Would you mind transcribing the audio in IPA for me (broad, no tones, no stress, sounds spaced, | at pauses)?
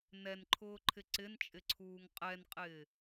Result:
n ɛ n ǃʰ ʊː ǃʰ ɪ ǀ ɪ n t͡ʃʼ ɪ ǀʰ uː ŋ qʼ ɛ n qʼ ɪː